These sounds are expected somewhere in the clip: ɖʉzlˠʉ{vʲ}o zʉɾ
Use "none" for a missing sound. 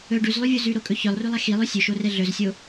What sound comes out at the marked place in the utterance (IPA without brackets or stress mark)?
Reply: vʲ